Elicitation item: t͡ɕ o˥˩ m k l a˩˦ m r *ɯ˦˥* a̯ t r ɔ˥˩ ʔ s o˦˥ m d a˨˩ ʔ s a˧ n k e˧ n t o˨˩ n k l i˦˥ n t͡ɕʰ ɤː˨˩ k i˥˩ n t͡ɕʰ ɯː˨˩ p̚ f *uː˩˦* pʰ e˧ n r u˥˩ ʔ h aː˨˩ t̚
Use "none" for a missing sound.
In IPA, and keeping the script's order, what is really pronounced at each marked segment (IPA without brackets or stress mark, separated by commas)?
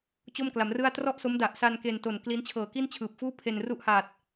ɯ˥˩, uː˥˩